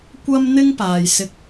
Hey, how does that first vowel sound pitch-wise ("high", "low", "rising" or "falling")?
high